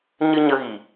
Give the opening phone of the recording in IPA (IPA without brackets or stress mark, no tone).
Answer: ɲ